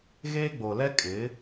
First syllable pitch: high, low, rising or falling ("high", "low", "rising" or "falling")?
high